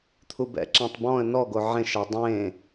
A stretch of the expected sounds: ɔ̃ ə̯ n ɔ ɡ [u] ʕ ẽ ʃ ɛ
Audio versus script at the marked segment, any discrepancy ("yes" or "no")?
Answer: yes